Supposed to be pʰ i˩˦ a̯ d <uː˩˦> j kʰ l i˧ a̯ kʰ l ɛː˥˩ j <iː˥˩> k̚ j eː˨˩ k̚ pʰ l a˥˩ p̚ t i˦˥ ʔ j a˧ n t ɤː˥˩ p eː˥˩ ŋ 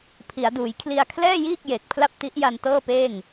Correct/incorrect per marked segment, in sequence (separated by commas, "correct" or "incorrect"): correct, correct